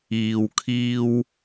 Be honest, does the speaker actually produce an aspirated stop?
yes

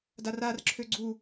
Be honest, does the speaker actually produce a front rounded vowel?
yes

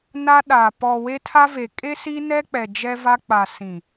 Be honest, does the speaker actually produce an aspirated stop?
yes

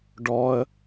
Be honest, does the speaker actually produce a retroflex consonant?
yes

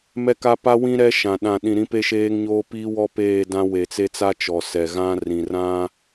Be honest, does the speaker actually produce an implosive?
yes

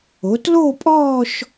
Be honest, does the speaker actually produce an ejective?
yes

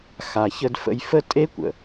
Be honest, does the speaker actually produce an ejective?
yes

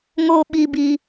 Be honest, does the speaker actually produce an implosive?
yes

